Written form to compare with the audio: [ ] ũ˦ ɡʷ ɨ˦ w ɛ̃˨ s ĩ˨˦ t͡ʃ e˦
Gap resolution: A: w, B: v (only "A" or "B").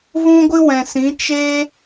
B